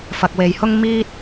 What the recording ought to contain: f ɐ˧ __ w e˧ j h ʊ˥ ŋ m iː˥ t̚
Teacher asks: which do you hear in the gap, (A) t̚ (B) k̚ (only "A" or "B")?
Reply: B